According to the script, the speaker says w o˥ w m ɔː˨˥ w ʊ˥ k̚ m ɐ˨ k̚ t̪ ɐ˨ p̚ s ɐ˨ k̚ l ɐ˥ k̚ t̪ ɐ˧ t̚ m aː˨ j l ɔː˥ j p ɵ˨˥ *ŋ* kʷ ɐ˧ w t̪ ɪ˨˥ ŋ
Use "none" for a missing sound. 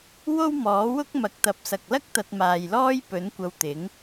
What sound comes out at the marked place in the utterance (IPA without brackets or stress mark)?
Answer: n